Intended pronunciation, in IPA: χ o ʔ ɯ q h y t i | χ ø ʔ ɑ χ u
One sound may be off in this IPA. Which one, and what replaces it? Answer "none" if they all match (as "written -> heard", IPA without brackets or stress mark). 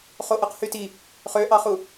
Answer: none